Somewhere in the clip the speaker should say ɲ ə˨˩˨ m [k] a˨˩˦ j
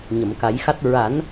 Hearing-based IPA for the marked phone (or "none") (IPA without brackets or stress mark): k